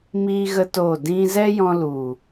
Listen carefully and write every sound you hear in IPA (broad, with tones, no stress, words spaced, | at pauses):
miː˦ɣə˦to˦˨ dĩ˦ zɛ˦jɔ̃˧lu˨